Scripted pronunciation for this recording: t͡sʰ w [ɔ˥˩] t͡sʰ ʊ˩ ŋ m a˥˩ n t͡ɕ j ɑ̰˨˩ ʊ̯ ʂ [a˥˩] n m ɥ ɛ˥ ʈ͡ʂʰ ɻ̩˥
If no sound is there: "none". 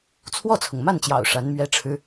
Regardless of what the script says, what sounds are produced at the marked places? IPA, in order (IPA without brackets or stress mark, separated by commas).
ɔ˥˩, a˧˥